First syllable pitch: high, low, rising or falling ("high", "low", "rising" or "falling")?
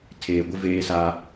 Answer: low